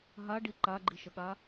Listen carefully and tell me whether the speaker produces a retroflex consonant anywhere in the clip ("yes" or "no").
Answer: yes